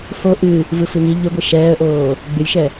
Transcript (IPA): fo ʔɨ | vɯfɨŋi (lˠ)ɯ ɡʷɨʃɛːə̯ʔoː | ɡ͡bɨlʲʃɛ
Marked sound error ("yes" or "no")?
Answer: yes